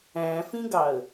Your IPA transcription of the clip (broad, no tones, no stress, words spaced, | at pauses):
æ̃fĩɡɑə̯